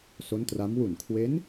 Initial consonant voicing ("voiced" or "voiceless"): voiceless